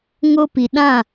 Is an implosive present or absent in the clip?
present